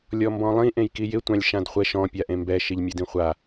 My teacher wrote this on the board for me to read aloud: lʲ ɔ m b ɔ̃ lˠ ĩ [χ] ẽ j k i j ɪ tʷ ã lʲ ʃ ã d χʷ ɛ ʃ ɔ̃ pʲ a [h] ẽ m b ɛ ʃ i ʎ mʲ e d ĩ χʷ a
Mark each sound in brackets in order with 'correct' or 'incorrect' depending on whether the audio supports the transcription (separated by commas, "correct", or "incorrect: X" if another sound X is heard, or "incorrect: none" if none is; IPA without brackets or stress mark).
incorrect: ʔ, incorrect: ʔ